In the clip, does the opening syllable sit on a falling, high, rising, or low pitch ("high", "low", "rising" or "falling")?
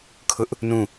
high